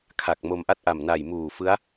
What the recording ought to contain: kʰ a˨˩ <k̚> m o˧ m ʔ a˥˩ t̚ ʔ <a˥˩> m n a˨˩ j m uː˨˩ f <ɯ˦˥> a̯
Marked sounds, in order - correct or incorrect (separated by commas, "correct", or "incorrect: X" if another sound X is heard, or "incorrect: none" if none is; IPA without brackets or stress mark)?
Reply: correct, incorrect: a˨˩, correct